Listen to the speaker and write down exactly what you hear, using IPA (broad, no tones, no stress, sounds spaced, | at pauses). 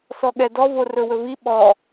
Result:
s ɔ ɠ ɛ d ɔ v o r ɵ w ɵ v i ɓ ɔ